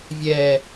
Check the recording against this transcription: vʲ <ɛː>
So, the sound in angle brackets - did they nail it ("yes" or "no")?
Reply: yes